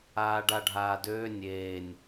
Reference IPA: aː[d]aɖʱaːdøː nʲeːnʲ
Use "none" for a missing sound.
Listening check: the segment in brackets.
ɖ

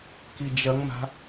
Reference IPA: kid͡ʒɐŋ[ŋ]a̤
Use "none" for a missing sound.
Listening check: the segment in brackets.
m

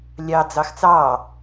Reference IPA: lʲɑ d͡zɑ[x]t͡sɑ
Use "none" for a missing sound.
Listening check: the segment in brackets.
x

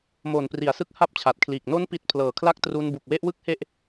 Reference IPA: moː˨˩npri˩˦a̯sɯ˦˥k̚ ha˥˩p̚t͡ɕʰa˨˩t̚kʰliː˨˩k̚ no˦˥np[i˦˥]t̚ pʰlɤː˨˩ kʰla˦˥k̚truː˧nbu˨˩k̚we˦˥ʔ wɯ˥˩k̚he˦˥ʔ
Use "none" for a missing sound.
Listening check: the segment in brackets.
i˨˩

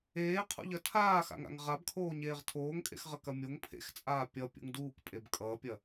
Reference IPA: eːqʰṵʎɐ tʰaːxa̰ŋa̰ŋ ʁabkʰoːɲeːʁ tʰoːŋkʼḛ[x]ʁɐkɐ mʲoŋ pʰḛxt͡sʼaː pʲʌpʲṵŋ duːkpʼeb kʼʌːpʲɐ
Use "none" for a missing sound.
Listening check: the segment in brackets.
x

